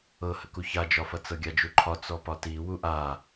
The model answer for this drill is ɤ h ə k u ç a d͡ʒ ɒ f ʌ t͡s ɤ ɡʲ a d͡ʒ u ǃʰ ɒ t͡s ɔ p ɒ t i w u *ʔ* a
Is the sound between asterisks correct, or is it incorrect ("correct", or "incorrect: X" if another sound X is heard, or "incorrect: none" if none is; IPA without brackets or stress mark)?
correct